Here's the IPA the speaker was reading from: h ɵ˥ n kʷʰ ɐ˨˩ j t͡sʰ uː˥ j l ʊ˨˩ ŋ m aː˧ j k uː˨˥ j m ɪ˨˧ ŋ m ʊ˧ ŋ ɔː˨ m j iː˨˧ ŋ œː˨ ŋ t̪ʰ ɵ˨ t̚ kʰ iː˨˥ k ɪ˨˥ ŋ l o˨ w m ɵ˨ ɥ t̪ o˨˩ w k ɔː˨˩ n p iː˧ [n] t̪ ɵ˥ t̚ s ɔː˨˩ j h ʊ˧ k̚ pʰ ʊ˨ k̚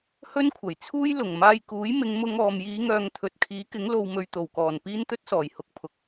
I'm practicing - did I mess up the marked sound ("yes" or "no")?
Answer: no